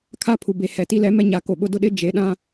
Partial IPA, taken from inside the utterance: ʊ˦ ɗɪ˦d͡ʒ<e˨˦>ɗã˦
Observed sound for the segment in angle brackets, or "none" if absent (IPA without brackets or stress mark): e˨˦